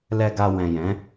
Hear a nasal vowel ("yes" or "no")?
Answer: yes